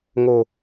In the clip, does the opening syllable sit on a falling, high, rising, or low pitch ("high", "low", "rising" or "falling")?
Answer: low